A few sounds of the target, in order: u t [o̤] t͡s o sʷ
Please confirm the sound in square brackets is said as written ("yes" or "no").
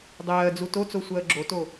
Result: no